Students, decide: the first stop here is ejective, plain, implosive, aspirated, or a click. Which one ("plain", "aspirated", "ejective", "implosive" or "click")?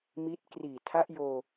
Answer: plain